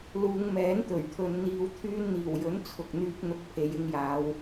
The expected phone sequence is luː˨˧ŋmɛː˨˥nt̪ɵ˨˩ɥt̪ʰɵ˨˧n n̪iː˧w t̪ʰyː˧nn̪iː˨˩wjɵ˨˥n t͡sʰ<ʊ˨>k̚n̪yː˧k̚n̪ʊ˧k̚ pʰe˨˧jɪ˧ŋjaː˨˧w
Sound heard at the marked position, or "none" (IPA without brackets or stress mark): ʊ˨